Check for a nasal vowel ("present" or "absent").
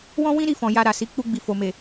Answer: present